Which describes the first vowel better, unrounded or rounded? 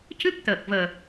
unrounded